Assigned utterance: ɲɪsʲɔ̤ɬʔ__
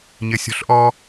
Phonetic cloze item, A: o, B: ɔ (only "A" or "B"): B